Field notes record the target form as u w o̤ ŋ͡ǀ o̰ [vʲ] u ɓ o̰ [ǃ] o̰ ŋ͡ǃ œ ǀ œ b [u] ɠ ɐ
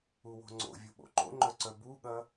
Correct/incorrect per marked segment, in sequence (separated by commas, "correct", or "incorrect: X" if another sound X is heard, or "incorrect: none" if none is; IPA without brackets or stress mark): correct, correct, correct